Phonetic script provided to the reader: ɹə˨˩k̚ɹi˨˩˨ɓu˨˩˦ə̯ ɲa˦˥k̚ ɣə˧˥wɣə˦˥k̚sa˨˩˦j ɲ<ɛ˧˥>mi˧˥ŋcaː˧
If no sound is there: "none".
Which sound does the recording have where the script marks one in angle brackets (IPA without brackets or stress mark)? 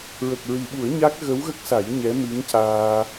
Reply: ɛ˧˥